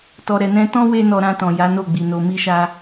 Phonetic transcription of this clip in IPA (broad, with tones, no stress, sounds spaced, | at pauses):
t ɔ˨ ɾ ɛ˨ n ɛ̃˧ t ɔ̃˦ w e˦ n ɔ˧ ɾ ã˧ t ɔ̃˨ j a˨˦ n o˦˨ ɡ͡b i˨ n o˧ m i˦ ʃ a˦